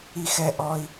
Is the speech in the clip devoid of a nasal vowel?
yes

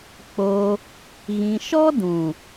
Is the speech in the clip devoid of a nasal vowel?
no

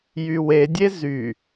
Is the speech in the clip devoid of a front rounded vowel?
no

